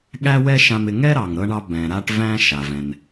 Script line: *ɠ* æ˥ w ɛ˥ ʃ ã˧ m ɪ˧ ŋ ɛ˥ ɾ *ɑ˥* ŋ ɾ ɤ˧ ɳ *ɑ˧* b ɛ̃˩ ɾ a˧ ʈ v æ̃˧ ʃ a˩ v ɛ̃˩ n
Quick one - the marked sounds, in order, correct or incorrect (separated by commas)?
correct, incorrect, correct